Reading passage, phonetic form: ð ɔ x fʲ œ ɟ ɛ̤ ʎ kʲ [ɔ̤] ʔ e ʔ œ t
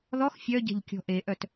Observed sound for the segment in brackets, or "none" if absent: ɔ̤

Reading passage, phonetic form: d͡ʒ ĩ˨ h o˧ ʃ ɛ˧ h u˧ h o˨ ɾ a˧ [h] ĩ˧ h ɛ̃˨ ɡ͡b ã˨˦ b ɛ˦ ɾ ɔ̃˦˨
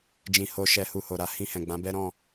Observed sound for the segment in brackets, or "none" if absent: h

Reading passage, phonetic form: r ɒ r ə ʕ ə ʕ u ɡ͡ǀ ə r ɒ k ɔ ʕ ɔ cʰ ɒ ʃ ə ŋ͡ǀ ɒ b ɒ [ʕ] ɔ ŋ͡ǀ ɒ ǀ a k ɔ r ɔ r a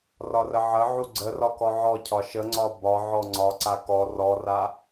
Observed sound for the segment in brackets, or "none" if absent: ʕ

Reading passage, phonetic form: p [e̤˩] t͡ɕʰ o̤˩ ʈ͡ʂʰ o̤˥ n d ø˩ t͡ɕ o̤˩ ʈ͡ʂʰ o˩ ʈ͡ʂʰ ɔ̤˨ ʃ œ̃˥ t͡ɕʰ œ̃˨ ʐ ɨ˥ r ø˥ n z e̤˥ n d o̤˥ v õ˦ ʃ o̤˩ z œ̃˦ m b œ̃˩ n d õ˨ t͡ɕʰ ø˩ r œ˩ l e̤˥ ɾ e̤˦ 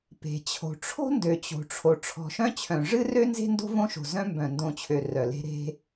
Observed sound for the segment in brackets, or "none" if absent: e̤˩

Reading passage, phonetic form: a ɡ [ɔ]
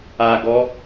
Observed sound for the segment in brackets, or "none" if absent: ɔ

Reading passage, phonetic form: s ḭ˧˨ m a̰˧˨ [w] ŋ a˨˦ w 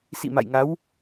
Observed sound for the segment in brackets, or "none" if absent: j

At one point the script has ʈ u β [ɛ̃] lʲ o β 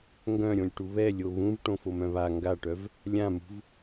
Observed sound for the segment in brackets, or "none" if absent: ɛ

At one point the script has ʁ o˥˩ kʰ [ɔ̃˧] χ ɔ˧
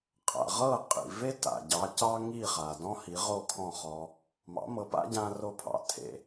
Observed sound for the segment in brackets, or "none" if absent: ɔ̃˥˩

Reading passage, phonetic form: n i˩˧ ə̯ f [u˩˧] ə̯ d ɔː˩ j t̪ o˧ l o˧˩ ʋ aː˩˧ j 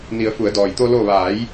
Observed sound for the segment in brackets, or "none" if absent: u˩˧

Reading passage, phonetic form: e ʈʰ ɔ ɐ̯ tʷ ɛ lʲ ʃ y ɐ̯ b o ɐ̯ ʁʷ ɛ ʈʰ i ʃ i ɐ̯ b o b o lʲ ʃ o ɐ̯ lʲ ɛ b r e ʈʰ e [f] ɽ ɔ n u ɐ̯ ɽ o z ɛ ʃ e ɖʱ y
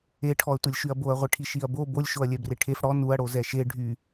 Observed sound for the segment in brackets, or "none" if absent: f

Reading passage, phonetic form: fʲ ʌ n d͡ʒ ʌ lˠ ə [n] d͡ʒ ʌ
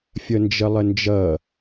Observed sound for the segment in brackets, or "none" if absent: n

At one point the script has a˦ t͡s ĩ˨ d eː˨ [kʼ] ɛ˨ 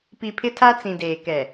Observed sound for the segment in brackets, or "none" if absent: k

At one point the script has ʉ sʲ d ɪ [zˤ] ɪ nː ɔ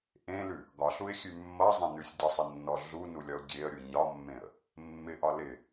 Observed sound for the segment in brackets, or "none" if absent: sˤ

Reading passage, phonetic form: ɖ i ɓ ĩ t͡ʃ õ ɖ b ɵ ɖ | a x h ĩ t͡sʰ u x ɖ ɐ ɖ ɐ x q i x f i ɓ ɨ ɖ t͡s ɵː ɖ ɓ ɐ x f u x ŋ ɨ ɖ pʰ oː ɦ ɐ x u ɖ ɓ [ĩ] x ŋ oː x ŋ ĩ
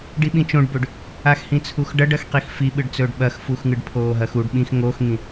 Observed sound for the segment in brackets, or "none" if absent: ĩ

